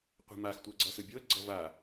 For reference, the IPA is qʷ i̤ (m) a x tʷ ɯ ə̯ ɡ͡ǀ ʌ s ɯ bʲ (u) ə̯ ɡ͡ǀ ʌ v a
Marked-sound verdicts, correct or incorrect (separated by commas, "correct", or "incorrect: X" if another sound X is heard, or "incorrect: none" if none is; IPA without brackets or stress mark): correct, incorrect: o